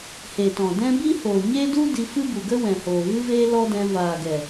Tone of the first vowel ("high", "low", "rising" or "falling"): low